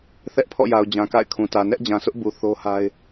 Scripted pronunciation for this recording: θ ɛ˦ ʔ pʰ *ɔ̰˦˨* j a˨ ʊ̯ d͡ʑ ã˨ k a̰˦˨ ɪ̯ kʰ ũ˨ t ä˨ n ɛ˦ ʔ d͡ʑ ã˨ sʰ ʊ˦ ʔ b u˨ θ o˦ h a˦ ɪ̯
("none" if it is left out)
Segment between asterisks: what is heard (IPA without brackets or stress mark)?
ɔ̰˦˨